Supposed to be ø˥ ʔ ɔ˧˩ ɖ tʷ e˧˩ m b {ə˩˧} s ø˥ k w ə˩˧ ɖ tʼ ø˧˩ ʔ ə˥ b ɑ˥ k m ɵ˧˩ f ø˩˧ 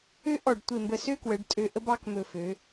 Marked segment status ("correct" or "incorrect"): incorrect